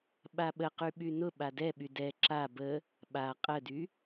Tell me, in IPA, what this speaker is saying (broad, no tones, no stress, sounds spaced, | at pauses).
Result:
ɓ a ɓ ə q y ɓ y n ʊ ɓ a d ɛ ɓ y d ɛ ǁ a b ə | ɓ a qʼ ə d y